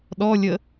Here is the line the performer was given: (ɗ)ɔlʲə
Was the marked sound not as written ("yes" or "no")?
no